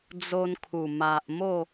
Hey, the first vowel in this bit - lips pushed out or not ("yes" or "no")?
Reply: yes